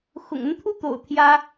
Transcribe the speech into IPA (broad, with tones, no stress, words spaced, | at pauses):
xʊ̰˨˩ŋə˦n t̪ʰu˦t̪o̰˨˩ʊ̯ t̪ʰjä˦